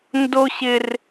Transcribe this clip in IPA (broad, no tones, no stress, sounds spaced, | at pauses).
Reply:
n d o ɕ ɪ r